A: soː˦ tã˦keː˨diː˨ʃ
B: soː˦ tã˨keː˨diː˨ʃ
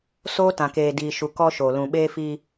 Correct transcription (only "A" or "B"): B